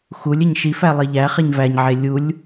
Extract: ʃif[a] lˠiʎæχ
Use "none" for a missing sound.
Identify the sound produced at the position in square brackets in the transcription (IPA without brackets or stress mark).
æ